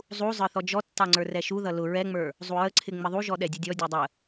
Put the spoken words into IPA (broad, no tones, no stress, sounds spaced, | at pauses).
zˤ u zˤ ə˞ θ ɔ d͡ʒ ɔ tː ɑ ŋ͡ǀ ə˞ r ɛ ʃ u ð ʌ l ʊ ɹ ɛ ŋ͡m ə˞ | zˤ u ɹ ə ǀʰ ɪ ŋ͡m ɪ ðˤ u ʒ ɔ ɗ ɛ dʲ u dʲ ɔ dʲ ə˞ dˤ ə